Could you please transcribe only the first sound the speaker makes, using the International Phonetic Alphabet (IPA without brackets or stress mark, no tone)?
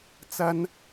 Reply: t͡s